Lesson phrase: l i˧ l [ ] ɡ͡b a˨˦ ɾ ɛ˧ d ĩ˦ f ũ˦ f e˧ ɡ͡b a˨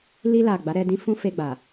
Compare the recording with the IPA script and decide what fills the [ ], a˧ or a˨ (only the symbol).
a˨